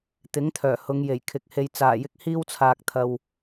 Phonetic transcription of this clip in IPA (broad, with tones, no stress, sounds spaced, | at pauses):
t̪ ɪ˨˥ ŋ t̪ʰ œː˨˩ h ʊ˨˧ ŋ j e˨˩ j kʰ ɪ˨ k̚ h e˨ j t͡s aː˨˩ j ɪ˧ k̚ h iː˥ w t͡sʰ aː˨ k̚ t̪ʰ ɐ˨ w